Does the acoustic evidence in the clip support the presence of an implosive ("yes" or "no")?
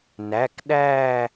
yes